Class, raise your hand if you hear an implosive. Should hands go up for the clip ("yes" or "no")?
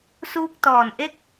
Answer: no